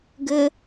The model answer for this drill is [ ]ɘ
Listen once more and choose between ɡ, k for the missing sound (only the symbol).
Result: ɡ